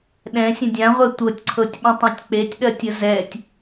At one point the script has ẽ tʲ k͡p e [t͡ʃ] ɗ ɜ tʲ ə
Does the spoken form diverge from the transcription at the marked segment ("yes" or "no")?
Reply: yes